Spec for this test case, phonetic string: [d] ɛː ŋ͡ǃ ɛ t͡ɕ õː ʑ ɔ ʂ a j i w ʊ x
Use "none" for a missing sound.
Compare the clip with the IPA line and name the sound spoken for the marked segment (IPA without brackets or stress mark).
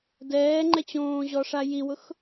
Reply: d